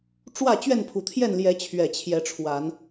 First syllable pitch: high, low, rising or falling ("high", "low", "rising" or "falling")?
falling